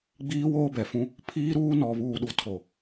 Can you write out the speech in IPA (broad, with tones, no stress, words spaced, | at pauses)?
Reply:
ɡ͡biː˦woː˦bɛ˨fũ˦ | pʰiː˦ɾuː˦ nɔ˨βuː˨ɗu˨ tʰo˨